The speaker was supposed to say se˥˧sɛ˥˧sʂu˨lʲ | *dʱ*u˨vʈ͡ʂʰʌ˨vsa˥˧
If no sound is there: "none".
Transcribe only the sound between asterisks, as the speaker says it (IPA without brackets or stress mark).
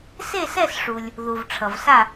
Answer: ð